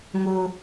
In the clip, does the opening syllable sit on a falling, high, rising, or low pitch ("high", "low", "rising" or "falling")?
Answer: high